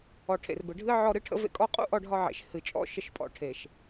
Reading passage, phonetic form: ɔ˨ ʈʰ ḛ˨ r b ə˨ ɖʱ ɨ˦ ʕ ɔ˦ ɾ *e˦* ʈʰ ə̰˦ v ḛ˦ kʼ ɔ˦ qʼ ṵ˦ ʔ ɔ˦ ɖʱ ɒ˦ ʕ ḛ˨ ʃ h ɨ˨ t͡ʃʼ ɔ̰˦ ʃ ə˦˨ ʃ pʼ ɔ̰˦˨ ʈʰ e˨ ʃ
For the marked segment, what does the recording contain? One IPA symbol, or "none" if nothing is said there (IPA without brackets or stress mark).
ɨ˦